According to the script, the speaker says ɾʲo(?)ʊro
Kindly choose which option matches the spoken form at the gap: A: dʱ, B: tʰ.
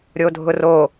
A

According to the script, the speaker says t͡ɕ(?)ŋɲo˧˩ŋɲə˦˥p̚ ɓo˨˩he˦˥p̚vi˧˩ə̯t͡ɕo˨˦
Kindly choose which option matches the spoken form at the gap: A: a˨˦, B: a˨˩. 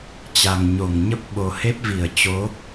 B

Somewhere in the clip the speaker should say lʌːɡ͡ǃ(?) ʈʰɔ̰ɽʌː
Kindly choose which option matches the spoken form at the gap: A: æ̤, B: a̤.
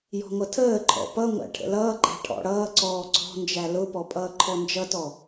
A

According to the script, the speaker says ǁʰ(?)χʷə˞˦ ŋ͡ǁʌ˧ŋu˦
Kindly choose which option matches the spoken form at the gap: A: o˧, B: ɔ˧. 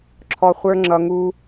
B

